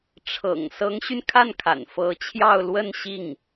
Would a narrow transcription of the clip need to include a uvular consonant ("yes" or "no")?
no